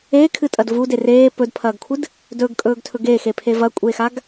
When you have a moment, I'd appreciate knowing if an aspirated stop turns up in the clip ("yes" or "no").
yes